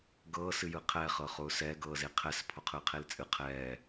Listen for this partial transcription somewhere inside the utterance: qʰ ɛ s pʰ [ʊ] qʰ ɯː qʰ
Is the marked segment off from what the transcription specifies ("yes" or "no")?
no